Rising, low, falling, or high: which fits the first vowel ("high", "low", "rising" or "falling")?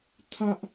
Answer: high